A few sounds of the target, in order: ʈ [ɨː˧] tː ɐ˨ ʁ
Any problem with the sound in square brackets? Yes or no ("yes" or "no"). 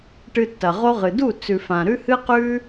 yes